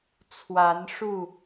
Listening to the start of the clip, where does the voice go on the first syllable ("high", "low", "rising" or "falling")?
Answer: rising